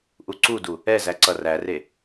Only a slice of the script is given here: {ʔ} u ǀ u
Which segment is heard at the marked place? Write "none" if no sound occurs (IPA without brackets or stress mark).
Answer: ʔ